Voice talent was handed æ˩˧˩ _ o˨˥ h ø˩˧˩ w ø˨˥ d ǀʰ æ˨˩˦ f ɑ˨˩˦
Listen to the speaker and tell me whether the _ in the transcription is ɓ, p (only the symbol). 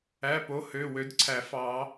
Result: p